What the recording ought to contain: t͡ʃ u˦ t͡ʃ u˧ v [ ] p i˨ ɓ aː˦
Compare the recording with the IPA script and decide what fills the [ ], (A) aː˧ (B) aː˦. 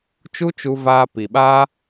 A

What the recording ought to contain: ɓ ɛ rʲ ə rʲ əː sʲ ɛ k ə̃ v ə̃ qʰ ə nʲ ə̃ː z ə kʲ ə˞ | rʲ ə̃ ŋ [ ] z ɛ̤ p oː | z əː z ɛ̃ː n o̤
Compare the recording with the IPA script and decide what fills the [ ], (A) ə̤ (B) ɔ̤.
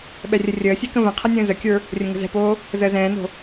A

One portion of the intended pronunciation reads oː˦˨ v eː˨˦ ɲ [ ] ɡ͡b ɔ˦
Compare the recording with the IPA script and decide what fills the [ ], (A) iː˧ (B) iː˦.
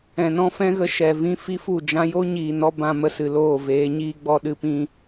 B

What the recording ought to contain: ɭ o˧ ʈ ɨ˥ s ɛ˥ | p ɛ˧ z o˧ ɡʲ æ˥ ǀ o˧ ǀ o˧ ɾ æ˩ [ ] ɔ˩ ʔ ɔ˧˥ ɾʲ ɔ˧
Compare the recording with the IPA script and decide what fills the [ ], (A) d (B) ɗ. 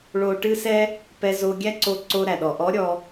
B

